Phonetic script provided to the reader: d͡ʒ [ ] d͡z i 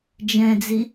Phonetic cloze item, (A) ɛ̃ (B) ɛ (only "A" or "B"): A